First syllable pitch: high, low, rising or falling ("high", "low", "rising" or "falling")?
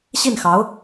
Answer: falling